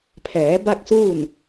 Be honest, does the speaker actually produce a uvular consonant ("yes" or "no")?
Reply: no